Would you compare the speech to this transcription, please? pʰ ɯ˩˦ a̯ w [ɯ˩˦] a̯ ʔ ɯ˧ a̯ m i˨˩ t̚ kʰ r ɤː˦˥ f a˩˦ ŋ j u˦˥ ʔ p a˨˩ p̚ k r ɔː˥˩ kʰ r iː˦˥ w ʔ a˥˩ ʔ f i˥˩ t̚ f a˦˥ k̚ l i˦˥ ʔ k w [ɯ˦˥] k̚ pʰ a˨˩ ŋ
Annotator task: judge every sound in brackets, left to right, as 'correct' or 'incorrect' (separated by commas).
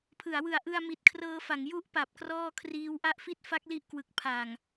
incorrect, incorrect